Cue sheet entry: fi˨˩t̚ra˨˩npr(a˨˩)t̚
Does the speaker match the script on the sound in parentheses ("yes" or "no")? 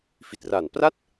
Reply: no